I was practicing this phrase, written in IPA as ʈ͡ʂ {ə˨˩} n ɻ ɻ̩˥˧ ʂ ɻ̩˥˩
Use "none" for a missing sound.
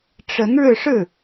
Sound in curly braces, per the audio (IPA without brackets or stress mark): ə˧˥